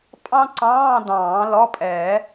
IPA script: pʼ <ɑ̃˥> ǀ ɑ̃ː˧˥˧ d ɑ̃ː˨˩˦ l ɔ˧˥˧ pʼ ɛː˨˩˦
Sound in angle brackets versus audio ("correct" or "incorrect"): correct